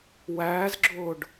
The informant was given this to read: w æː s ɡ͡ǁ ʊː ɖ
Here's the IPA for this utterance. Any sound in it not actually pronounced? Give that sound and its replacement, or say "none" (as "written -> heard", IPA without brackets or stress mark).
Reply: s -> z